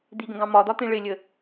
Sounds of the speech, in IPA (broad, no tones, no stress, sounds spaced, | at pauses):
d̪ i ɡ ə̃ ɡ ɑ̃ m ɒ d̪ ɒ t̪ ĩ ɭ ɪ lʲ ə